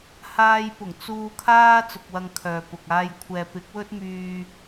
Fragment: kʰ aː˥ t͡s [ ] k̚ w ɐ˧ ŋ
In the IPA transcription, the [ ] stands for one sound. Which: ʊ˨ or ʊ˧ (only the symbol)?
ʊ˨